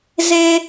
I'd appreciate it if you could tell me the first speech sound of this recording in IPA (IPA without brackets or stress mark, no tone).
z